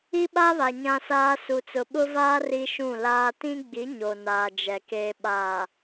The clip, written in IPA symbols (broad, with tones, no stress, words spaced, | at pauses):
i˦ɓa˦βa˨ ɲã˦saː˦ su˨t͡sʊ˨ɓʊ˦vaː˦ ri˦ʃũ˦˨laː˦ tĩ˦ɡ͡bi˨˦ ɲo˨naː˨ d͡ʒɛ˨ keː˨ɓaː˨